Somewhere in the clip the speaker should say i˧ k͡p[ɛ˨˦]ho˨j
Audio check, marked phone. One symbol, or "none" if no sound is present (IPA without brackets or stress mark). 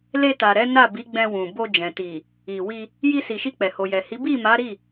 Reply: ɛ˨